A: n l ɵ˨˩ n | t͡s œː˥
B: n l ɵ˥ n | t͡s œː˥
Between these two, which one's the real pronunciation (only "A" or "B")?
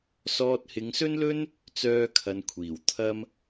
B